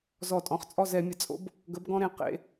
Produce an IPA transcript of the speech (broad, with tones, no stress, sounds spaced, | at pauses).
z ɔ˧˩˧ tʼ ɔ̃˩˥ χ t͡sʼ ɔ˥˨ z ɛ˩˥ mʲ ə˩˥ t͡sʼ o̰˧˥ b | ɡ ə˩˥ b ɡ ɔ̃˧ ɾ ẽ˩˥ q ḛ˩˧˩